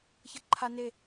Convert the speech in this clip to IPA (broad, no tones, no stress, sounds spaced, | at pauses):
ç ʌ ǃʰ a n e